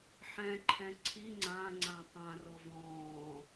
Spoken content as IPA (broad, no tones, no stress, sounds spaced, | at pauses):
ħ ɛ̃ ǃʰ ɛ̃ ǀʰ i ŋ͡ǀ ã ŋ͡ǀ ã tˤ ã r ɤ v ɔ̃ː